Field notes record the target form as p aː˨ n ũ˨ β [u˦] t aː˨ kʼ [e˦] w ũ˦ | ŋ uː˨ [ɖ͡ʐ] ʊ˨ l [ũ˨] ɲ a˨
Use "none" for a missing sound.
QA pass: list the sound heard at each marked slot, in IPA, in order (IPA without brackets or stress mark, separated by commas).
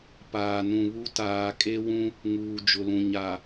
u˦, e˦, d͡ʒ, ũ˨